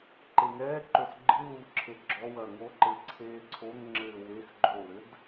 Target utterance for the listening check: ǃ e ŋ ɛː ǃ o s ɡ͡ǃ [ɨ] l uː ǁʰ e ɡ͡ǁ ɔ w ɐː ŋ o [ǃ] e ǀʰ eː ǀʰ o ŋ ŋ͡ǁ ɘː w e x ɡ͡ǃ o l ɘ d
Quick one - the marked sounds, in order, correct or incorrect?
correct, correct

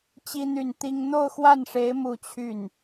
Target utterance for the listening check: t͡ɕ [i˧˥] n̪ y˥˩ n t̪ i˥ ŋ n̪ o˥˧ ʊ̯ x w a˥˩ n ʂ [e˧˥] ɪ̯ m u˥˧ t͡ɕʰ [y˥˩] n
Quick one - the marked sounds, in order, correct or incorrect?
incorrect: i˥, correct, correct

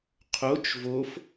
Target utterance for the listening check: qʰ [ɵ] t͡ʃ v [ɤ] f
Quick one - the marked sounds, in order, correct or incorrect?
incorrect: o, incorrect: o

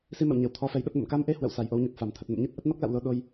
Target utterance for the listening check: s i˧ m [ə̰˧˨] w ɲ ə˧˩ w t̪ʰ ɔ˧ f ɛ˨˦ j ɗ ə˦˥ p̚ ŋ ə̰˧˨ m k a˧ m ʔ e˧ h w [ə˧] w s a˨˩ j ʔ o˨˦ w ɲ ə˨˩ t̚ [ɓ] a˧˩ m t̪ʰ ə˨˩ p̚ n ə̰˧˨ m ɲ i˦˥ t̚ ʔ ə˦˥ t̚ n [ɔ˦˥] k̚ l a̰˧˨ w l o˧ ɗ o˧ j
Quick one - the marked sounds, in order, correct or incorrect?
correct, incorrect: ə̰˧˨, incorrect: f, correct

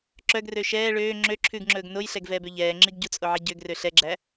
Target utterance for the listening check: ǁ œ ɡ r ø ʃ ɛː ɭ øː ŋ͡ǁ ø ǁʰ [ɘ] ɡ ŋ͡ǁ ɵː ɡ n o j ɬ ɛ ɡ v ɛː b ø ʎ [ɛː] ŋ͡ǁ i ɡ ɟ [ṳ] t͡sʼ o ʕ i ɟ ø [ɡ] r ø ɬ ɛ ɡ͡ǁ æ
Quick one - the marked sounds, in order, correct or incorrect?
incorrect: ʉ, correct, incorrect: u, correct

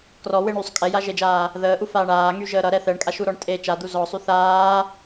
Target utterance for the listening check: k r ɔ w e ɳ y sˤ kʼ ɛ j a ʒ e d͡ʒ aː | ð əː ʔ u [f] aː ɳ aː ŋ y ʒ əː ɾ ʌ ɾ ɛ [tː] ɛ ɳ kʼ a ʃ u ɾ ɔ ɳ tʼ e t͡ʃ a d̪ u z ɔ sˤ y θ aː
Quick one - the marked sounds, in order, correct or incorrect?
correct, incorrect: θ

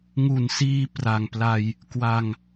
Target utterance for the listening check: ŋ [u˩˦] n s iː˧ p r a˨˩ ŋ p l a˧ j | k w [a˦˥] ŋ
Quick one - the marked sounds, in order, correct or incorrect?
incorrect: u˨˩, incorrect: a˧

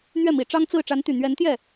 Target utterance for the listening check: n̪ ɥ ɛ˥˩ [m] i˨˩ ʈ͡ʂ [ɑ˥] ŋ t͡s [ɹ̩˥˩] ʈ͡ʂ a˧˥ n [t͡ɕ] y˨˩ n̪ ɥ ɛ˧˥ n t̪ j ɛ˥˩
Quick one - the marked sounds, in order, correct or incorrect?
correct, correct, correct, incorrect: t̪

